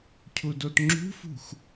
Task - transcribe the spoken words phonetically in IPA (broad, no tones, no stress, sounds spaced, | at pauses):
cʰ u d o t ŋ͡ǁ ṳ f ṳ x